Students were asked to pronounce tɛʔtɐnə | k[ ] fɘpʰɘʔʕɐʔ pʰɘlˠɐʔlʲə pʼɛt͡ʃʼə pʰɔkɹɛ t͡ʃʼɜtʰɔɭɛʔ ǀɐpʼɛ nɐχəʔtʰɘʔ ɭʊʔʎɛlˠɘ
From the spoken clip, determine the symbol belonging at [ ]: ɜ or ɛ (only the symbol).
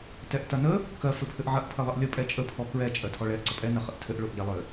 ɜ